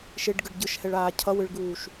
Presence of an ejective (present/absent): absent